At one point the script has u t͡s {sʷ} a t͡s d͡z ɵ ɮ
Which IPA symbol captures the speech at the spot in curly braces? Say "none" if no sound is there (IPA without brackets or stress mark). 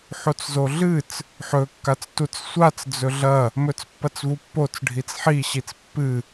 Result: sʷ